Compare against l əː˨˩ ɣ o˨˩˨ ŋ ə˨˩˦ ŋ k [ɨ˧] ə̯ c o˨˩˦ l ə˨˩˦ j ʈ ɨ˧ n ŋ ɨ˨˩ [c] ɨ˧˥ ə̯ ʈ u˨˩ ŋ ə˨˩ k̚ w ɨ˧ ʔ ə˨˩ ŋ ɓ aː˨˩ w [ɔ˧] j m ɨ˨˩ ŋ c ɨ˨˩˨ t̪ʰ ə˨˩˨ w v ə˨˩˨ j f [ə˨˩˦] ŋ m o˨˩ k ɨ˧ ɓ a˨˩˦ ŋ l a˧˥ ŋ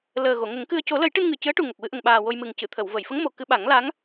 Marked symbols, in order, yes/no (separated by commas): yes, yes, no, no